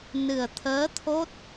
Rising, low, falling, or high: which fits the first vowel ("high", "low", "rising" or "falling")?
low